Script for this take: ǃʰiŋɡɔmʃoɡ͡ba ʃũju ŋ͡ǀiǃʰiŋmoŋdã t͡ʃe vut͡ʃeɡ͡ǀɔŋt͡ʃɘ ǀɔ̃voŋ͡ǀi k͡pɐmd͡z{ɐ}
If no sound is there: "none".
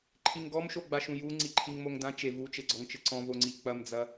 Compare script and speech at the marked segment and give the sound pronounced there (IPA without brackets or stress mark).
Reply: ɐ